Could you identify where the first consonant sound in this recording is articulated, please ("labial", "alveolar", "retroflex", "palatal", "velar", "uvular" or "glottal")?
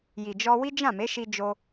palatal